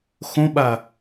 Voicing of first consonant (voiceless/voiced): voiceless